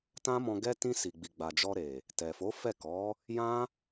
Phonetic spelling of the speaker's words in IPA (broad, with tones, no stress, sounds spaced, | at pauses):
t ã˦ m ɔ̃˧ ɡ ɛ˦ t ĩ˧ s i˨ ɡ͡b i˨ ɡ͡b a˨ d͡ʒ ɔ˧ ɾ e˨ | t ɛ˨ f o˨˦ f ɛ˦˨ k ɔ˨˦ | j ã˦